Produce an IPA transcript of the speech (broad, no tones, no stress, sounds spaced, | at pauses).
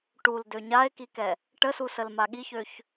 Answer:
ʈ u l d ø ɲ a e̯ k i k ɛ | ʈ ə s u s ə l m a ɠ i ç ø ç